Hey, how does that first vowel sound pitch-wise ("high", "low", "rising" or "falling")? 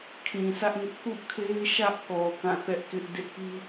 low